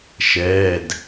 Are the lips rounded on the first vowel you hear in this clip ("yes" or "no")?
no